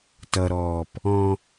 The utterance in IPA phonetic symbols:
t ʌ ɾ ɔː p | ɔ̃

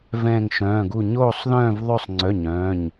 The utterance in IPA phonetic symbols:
v ɛ̃ː˥˧ ŋ ʃ œ̃ː˧˥˧ ɡ u˥˧ ɲ oː˥˧ sˤ ð œ̃ː˥˧ v ðˤ ø˥˧ sˤ ŋ͡ǀ œ˧˥˧ ɲ œ̃ː˧˥˧ ɲ

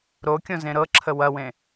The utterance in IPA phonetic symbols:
ɾ o kʲ õ z ẽ ɾ ɤ ǁʰ ə w ɐ w ẽ

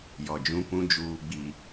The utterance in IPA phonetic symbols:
j ɔ˨ d͡ʒ ũ˦ p ũ˦ d͡ʒ uː˦ ɡ͡b i˦

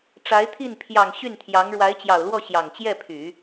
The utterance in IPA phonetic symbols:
ʈ͡ʂ a˧˥ ɪ̯ t̪ʰ i˥˩ n pʰ j ɑ˨˩ ŋ ɕ y˥˩ n t̪ʰ j ɑ˧˥ ŋ ɻ w a˧˥ ɪ̯ t͡ɕ j ɑ˨˩ ʊ̯ l w ɔ˥˩ ɕ j ɑ˨˩ ŋ t͡ɕ j ɛ˥˩ pʰ y˨˩˦

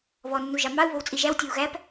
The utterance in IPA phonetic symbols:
β ɔ nː u ʒ ɑ m ɑ u̯ β o w t͡sʼ i ʒ æ w tʲ o u̯ ɣ æ p

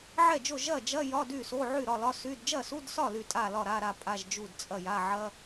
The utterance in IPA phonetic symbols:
ʕ ɛ˥˩ d͡ʒ o˥˩ ʒ ɐ˥˩ d͡ʒ ɐ˧˥˧ j ɒ˧˥˧ d y˥˩ s o˧˥˧ ʕ y˥˩ ɾ ɒ˥˩ l ɒ˧˥˧ s y˧˥˧ d d͡ʒ ɐ˥˩ s u˧˥˧ d s ɒ˥˩ l y˥˩ tʼ a˥˩ l ɒ˥˩ ɾ a˧˥˧ ɾ a˥˩ pʼ a˧˥˧ ʒ d͡ʒ u˥˩ d t͡sʼ ɐ˥˩ j a˧˥˧ ʕ ɐ˧˥˧

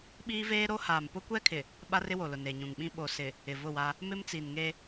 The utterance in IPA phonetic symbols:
ɓ iː˦ v eː˦ ɾ o˦ h aː˨ m p ʊ˦ kʷ ɛ˦ kʰ ɪ˨ | ɓ a˦ r ɪ˦ w o˨ l ʊ˨ n e˨ ɲ ũ˨ ŋ ɓ ĩ˦ ɓ o˨ s ɪ˨ | ɪ˨ v ʊ˦˨ w a˦ | m ɪ˦ m t͡s i˨ n ŋ e˦

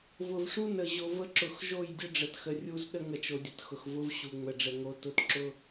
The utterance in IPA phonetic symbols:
v ʊ˨ v ʂ u˦ n ə˨ ʑ o˨ v ə˦ ǁ ʊ˨ x ʒ o˦˨ j dʲ ʊ˦ ɖ͡ʐ ə˨ t x ə˨ rʲ u˦ z ɗ ə˦ ŋ ə˨ t͡ʃ o˨ dʲ ə˨ t x ʊ˨ x v ʊ˦ v ɕ u˨ ŋ͡m ə˨ ɖ͡ʐ ə˨ ŋ o˦ t ʊ˦ t ǁ ʊ˦

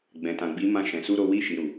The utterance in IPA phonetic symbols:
ɡ͡b ɛ̃˨ t ã˨ ɡ͡b i˨˦ m ã˧ ʃ ɛ̃˨ s u˧ ɾ o˧ w i˧ ʃ i˨ ɾ u˨

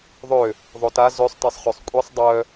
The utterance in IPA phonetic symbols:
ðˤ ø | ðˤ o t a z ø sˤ t ɛ sˤ χ ø sˤ kʷʼ i sˤ dˤ œ

